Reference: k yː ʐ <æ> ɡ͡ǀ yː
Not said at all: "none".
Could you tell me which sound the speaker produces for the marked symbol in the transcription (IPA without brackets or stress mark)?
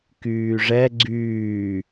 ɛ